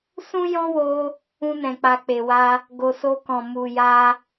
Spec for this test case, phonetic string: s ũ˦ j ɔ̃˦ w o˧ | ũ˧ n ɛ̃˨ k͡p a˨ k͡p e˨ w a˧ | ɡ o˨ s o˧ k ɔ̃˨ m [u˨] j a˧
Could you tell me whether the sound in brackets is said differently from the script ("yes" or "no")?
no